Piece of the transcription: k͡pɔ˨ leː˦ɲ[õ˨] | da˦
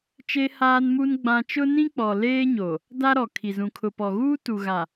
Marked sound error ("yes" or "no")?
yes